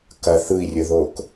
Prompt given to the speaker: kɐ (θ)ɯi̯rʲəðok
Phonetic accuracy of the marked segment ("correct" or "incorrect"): correct